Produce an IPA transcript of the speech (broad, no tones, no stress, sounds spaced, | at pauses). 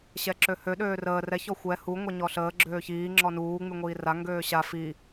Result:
ɕ ɛ ǁ ø h ø ɗ øː r əː r ɛ ç ɔ xʷ ɛ h u ŋʷ ɛ ɲ ɔ ɬ əː ɡ͡ǁ øː ç iː ŋ͡ǁ ɔ n uː ŋ͡m y ŋʷ iː r a ŋ ɡ øː ɕ a f i